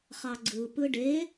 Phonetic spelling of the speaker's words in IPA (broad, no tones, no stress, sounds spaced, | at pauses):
χ ɑ ɡ͡ǀ ɯ p ɯ ɖ e